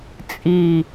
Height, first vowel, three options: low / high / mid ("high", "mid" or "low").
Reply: high